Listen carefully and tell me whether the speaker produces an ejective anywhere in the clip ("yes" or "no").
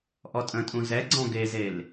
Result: yes